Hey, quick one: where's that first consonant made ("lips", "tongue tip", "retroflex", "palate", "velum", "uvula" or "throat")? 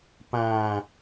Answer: lips